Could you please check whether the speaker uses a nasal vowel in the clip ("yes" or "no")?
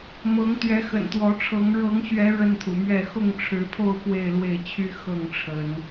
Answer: no